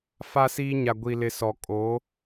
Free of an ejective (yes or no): no